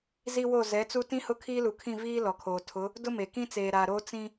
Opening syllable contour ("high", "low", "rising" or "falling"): high